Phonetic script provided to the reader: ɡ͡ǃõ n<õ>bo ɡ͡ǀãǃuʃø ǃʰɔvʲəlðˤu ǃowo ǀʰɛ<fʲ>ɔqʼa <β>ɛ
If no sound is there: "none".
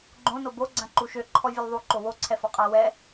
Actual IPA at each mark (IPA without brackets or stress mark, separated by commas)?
o, f, w